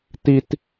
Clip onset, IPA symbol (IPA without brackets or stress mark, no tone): t